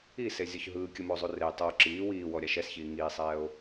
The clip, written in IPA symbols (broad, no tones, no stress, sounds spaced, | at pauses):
i s e zʲ ɔ ç ɦ ɯː kʲ ɯ m o zˤ u r e tˤ ɤ o̯ ǁ iː w iː w ɔ ɾʲ a ʃ ɛ s ç iː ŋ iː sˤ ɛː o̯